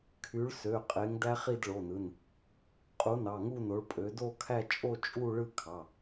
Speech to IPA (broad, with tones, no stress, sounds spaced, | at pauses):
kʰ y˨˥ ɭ s ø˩˧˩ qʼ e˨˥ ŋ d æ˦˥ χ i˥˧ d ɭ o˩˧˩ n ɯ˩˧˩ n | qʼ u˨˥ n ɑ˩˧˩ ŋ u˥˧ n o˨˥ ɭ pʼ ø˨˥ d o˥˧ kʰ æ˥˧ t͡ʃʼ o˥˧ t͡ʃʼ u˥˧ ɭ ɯ˥˧ kʰ ɑ˩˧˩